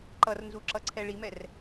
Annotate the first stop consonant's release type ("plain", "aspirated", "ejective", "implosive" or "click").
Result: click